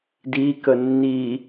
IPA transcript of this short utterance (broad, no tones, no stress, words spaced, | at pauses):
dikə nːi